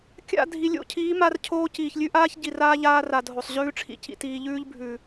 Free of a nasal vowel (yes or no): yes